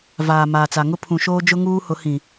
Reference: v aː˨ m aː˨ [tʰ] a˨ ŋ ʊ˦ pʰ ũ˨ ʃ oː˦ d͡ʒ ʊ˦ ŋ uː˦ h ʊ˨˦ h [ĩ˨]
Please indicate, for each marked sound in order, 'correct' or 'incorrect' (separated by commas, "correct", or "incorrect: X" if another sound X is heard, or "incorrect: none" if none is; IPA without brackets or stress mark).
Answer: incorrect: t͡s, correct